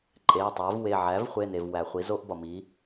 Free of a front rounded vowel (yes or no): yes